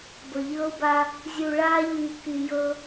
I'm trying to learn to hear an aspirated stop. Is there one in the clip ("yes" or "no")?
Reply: no